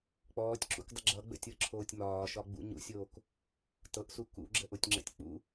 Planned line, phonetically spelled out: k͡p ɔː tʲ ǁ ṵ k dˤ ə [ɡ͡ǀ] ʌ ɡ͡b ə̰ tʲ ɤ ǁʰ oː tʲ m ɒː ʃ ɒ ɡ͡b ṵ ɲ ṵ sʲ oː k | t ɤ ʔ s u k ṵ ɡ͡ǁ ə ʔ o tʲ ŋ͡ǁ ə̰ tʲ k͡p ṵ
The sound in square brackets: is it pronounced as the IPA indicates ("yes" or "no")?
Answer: no